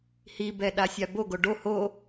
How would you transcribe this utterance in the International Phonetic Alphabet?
h i b ɛ ɗ a sʲ a b o ɡ o ɖ o h o

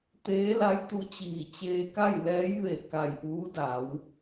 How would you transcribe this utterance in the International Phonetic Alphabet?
t̪ eː˧˥ l a˧˥ j t̪ u˧˥ t͡ɕ iː˧˩ t͡ɕ eː˧ k a˥˨ j l ɛː˧˥ j ʋ e˧˩ k a˧˩ j ʔ uː˧˥ d a˩˧ w

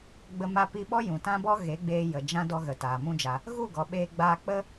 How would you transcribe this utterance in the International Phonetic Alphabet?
ɡ͡b ə˧ m a˧ p i˧ ɓ ɔ˦ j ũ˨ t ã˦ b ɔ˦ ɣ e˨˦ ɡ͡b eː˧ j ə˨ d͡ʒ ã˦ d ɔ˧ ɣ ə˨ t aː˨ m ũ˧ d͡ʒ a˨ | ɣ u˦˨ ɡ ɔ˨ ɓ eː˧ ɡ͡b aː˧ k͡p ə˦

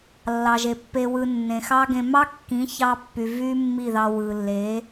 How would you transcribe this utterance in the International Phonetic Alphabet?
lː ɑ˨ ʒ e˨ pː e˧ w ɯ˧ nː ẽ˨ x ɑ˦ ɡ ẽ˧ m ɑ˦ kː ĩ˨˦ ç ɑ˧ pː y˨ v y˦ mː i˦˨ ð ɑ˧ w ɯ˨ lː e˨˦

